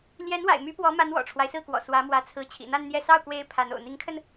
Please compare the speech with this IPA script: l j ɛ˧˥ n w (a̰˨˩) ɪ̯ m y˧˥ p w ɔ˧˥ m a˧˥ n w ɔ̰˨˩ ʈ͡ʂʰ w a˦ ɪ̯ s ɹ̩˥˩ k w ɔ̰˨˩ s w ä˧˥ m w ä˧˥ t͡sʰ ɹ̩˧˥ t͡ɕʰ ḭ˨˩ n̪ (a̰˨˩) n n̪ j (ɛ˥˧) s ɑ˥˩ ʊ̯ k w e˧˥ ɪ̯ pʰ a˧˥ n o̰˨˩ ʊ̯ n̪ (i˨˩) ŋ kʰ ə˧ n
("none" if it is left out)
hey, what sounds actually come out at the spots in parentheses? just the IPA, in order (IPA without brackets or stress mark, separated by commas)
a̰˨˩, a˥˧, ɛ˥˧, i˧˥